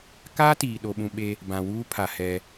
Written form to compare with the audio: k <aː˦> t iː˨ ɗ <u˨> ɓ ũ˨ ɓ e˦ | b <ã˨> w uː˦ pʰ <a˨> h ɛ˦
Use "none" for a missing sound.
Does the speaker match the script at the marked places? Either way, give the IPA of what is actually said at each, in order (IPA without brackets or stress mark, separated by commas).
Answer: aː˦, o˨, ã˨, a˨